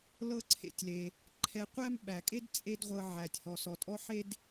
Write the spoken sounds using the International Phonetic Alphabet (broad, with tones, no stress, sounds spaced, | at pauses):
l ɤ˥ ǀʰ ḛ˧ tʲ l e˩ | ǃʰ ɛ˧ qʷ æ˥ m ɓ æ˩ kʼ e˥ d t͡sʼ e˥ d ʁʷ ɤ˧ ʕ æ˩ tʲ h ɔ˩ s ɔ˩ tʼ ɔ˥ ħ e˥ d